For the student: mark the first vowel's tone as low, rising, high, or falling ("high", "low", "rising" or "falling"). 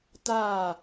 falling